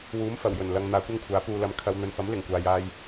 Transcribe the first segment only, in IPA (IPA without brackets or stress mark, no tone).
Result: w